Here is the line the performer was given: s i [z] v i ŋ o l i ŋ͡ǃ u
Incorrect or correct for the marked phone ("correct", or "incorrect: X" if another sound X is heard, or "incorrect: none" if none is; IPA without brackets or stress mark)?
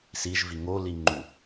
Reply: incorrect: ʒ